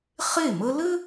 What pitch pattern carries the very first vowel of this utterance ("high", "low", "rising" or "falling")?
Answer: falling